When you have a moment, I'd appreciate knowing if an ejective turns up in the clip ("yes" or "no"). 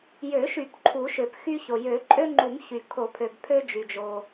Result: yes